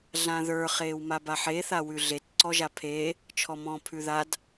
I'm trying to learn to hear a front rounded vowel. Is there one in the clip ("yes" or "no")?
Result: no